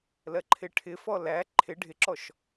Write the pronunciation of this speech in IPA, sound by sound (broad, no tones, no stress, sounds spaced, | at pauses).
l ɜ ǃʰ ɪ ʈʰ ɪ f ɔ l æ ǃʰ ɪ ɖʱ ɪ ǁ ɔ ʃ